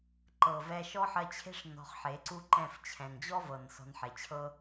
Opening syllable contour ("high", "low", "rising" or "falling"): low